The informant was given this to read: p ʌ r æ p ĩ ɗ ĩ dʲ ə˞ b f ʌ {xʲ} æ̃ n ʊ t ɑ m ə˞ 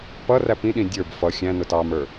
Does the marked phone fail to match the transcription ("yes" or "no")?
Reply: no